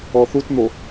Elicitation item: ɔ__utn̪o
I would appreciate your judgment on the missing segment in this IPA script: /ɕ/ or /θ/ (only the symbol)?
θ